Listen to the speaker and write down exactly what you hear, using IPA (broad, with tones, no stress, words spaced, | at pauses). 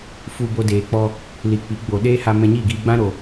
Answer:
fu˧ bo˧deː˨k͡pɔ˧ | li˨ k͡pi˨˦ɡ͡bo˨ ɗeː˦ha˧mɛ̃˧ɲiː˦˨ ɡiː˧ɡ͡bã˦ɾo˨